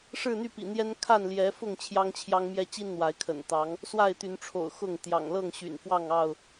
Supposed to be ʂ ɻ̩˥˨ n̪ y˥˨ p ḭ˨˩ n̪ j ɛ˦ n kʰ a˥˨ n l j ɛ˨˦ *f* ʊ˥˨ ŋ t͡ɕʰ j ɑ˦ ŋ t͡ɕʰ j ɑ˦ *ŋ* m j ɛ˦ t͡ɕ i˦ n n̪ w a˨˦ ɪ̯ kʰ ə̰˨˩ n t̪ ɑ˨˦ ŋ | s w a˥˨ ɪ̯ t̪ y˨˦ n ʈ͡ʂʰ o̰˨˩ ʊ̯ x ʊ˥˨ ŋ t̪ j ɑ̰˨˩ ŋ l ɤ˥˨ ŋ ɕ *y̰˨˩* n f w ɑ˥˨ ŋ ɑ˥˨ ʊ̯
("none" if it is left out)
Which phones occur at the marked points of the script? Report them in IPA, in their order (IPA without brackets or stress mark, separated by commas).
f, ŋ, y̰˨˩